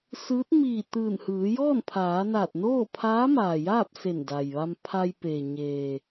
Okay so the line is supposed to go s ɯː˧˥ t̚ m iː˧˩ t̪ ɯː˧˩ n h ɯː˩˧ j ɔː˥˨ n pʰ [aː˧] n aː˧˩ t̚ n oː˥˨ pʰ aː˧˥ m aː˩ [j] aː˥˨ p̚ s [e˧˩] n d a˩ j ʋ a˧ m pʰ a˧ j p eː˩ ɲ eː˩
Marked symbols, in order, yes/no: no, yes, yes

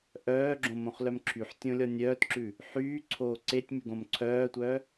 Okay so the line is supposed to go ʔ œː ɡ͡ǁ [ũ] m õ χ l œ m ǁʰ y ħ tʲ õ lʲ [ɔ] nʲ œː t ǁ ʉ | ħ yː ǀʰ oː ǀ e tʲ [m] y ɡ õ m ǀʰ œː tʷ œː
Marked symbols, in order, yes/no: no, yes, yes

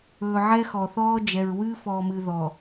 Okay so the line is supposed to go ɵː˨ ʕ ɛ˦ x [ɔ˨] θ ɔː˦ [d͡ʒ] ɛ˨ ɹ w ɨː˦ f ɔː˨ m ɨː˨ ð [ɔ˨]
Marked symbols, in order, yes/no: yes, yes, yes

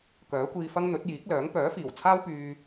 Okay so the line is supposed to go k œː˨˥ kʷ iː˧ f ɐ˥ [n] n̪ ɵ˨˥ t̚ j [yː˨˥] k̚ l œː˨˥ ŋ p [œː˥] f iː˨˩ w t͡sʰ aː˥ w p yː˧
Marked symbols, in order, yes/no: no, no, no

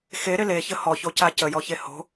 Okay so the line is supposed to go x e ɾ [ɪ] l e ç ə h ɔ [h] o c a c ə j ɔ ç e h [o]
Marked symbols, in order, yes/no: yes, no, no

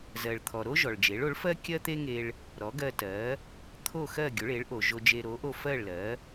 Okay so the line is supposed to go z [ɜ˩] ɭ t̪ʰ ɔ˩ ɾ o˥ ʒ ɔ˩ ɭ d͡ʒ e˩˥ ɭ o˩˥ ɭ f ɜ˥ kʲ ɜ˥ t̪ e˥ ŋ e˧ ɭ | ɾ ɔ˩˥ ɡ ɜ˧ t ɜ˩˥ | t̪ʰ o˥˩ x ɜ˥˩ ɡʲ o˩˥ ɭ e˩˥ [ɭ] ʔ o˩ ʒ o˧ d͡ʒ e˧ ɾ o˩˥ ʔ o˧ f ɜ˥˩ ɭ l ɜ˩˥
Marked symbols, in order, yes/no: yes, yes

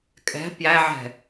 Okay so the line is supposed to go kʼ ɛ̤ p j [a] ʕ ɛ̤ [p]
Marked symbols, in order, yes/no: no, no

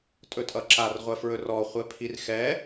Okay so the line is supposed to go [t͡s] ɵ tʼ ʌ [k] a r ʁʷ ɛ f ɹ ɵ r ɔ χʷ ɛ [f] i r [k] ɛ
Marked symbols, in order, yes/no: no, no, no, no

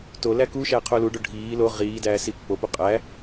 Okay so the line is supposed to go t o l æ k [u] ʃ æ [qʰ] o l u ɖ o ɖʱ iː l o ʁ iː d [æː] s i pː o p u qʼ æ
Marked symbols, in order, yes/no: yes, yes, yes

